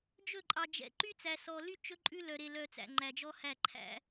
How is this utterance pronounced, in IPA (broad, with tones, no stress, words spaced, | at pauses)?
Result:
d͡ʒɵ˦˨ ǃʼɑ˨d͡ʒɛ̰˨ ǃy˦t͡sæ˨sɔ˨ly˦ t͡ʃɵ˦ǃʼʉ˦lœ˨ɾe˨ lœ˨ t͡sæ̰˨ŋ͡ǃæ˨d͡ʒɔ˦hæ˦˨ ǃʰæ̰˦